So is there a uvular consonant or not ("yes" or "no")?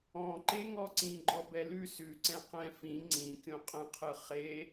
yes